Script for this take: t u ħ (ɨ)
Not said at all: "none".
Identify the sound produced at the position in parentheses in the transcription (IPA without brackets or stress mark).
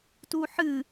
ɨ